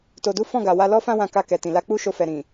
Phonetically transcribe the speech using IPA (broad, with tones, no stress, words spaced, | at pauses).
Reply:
to˧du˦ fɔ̃˦˨ɡa˨wa˧lɔ˦ fã˦wã˧ ka˧kɛ˨ tĩ˨la˧ k͡pu˦ʃo˧fɛ˨ ɾĩ˨